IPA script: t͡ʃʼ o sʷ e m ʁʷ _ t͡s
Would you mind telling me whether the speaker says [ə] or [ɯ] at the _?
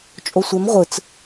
ɯ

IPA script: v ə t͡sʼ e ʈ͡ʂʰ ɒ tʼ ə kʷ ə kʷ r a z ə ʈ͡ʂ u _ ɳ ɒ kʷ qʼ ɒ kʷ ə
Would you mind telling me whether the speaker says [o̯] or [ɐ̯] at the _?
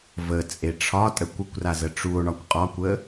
o̯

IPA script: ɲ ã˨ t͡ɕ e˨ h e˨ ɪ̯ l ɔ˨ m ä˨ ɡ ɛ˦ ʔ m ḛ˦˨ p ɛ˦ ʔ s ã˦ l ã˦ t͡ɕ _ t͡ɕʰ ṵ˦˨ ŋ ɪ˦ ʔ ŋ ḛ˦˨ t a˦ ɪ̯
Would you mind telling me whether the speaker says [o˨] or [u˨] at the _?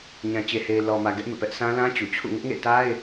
u˨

